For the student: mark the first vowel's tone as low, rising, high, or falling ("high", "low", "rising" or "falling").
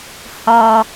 low